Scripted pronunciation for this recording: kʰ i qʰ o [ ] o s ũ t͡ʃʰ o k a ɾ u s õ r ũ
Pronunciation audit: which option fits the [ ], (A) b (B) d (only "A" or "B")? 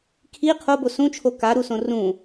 A